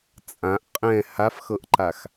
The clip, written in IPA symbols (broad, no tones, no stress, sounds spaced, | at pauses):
t͡sʼ ã ʔ qʼ ɛ̃ h a f x ɤ ʔ ǃ a x